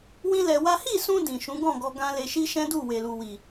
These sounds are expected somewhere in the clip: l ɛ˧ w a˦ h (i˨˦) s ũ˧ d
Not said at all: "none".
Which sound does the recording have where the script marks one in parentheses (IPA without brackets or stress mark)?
i˦˨